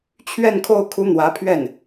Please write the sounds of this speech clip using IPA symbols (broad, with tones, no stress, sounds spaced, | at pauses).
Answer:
t͡ɕʰ ɥ ɛ˥˧ n kʰ o˥˩ ʊ̯ kʰ u˥ n̪ w ä˧˥ pʰ ɥ ɛ˥˩ n